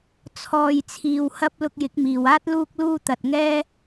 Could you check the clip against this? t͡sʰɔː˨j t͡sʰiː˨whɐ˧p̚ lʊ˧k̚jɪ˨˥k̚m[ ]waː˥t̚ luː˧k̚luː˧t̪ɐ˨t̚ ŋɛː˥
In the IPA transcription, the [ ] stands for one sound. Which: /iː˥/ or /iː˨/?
iː˨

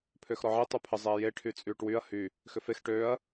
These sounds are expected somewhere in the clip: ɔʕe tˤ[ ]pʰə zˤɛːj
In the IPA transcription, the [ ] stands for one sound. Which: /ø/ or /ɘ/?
ø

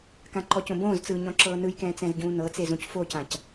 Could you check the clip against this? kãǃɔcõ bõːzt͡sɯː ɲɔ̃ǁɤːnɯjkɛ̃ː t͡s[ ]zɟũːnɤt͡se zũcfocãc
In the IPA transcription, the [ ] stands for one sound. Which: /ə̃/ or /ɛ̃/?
ɛ̃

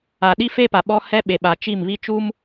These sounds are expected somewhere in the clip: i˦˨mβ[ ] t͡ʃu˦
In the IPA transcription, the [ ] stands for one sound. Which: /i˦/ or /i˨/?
i˦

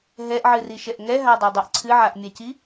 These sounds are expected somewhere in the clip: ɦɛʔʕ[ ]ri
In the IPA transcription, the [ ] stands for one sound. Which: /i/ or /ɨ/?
ɨ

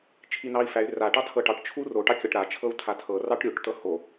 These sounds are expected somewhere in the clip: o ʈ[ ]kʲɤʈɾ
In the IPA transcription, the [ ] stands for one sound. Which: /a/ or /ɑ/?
ɑ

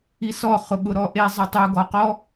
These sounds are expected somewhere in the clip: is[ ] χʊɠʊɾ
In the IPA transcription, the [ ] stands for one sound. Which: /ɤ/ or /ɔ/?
ɔ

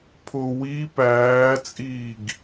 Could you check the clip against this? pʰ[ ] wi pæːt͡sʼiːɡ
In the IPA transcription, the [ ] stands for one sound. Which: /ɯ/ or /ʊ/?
ʊ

